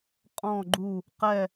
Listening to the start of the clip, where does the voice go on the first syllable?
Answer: falling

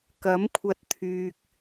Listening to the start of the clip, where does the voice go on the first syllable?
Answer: rising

